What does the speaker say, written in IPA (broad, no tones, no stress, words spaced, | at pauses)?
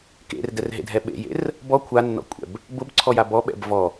kḛrdɛrɦḛdʱɛ ɓḛjḛr | bɔ kʷʰanːɔ̰kʷʼɛ̰b | bʊbǀʰɔja bɔɓɛ̰b vɔ